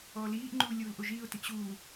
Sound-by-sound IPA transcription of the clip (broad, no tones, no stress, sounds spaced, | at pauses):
ɔː l iː ʔ ŋ͡ǃ uː lʲ uː l ʔ o ʒ iː ʊ̯ t i ʔ ɕ uː